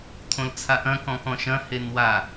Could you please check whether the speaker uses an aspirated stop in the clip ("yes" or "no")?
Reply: yes